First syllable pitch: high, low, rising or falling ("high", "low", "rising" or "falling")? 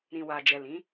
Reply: low